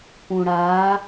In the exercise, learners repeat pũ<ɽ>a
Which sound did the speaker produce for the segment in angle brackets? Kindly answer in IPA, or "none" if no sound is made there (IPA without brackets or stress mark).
ɽ